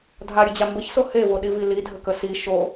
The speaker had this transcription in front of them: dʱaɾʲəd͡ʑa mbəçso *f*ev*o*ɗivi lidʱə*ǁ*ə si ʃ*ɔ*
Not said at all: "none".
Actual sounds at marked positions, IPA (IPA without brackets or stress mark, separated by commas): h, o, k, o